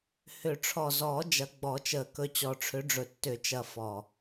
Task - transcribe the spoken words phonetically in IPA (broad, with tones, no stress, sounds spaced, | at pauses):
h ʏ˨˩˦ ʈ͡ʂʰ ɔ˨˩ z ɔː˨˩˦ d͡ʒ ɐ˨˦ ɡ͡b ɔ˨˩˦ t͡ʃ əː˨˩ k ɵ˨˦ t͡ɕ ɔ˨˩ ʈ͡ʂʰ ʏ˨˦ ɖ͡ʐ ɵ˨˩ tː ʏ˨˩˦ t͡ʃ ɐ˨˩ f ɔ˨˩